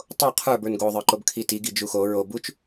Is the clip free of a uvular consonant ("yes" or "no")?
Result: no